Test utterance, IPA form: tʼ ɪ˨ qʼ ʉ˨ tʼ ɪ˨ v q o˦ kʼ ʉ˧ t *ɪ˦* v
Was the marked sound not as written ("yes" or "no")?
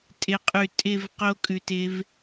no